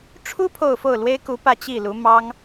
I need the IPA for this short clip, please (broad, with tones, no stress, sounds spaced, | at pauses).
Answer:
ʈ͡ʂʰ u˥ pʰ o˥˧ ʊ̯ f o˥˩ ʊ̯ l w e˥ ɪ̯ k u˧˥ p ä˥˧ t͡ɕ i˥˩ l u˧˥ m ɑ˥ ŋ